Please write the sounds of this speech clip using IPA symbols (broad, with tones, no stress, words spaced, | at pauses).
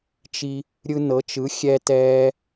t͡ʃi˧ | ɾʲɯ˧nɤ˩˥t͡ʃɯ˩˥xʲɛ˧ tɛː˧